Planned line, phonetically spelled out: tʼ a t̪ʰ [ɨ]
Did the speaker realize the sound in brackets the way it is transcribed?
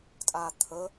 no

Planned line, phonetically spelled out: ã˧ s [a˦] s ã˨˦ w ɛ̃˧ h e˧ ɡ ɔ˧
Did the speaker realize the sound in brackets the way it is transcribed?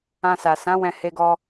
no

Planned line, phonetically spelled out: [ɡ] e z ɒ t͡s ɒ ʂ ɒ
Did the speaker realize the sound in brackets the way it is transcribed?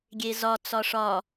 no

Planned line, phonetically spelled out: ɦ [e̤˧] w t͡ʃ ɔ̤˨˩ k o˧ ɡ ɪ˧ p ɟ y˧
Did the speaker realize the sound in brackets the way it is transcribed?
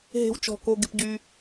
yes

